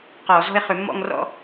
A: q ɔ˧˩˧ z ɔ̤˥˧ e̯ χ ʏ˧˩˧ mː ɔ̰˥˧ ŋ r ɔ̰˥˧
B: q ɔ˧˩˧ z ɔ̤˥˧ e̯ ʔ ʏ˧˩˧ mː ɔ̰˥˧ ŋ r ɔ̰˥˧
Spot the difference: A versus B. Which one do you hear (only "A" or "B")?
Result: A